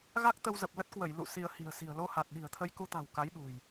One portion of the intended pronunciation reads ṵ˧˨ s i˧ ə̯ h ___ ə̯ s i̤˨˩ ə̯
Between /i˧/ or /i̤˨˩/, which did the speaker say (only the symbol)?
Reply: i̤˨˩